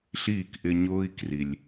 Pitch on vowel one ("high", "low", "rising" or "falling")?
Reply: falling